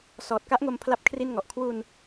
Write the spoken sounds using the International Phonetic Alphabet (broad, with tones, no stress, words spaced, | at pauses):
sɔː˨˩t̚ka˦˥ʔŋo˧m pʰla˥˩p̚kʰri˥˩nŋɔ˨˩ʔ kʰwu˧n